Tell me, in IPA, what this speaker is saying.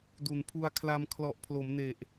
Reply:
du˨˩npʰu˧a̯kʰla˧m kʰlɔ˨˩ʔpʰlo˩˦mne˨˩ʔ

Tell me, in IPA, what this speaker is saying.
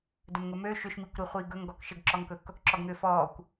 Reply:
dɵmŋɵmø ʃʏʃmikʷɾiχʷiː ɡɵŋɡɔk ʃəɡǁɔŋkɵk | ǁɔɡŋʏːfɔːkʷ

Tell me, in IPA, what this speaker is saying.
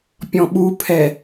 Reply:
pʲɔ̃ɓupʰɛ

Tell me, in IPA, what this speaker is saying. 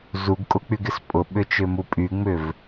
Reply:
zuɡkʼʊk͡pyɡɪs pʼʊɓʏt͡ʃʏmu pʼyŋ͡mʏv

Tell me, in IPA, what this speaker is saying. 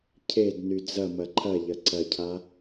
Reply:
cʰedny d͡zɐmɐ ǃʰɐʎɐ ǀɐcʰa

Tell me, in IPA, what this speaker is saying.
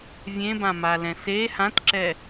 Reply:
vʲẽbãmalɛ̃ se hãtǁɛ

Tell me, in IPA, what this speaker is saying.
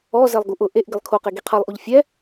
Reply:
ɔ zɛlˠɡuʔʊ ʔeʔ ɡɪlˠkʰoqe ɡiqʰalˠʔuʎ fʲɛ

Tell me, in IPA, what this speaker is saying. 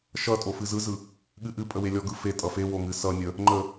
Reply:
ʃʌtʼo fɨzɯzɯ | ɠɨʔɨpʼə welʲɔɡɯ fe tʼʌfewo ŋɨsʌnʲə | ŋ͡ǃə

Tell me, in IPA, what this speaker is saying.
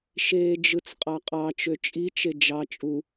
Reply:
ʃeːd͡ʒɯt͡sqʼɑqʼɑ t͡ʃøt͡ʃʼit͡ʃe d͡ʒɑ t͡ʃʼu

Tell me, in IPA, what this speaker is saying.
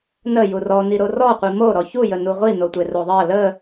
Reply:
nə jurɔ niɾorɔ qʷimo ɾɔçu jənuʁʷi notʷeroðˤɜ lə

